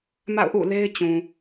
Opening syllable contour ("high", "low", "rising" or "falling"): falling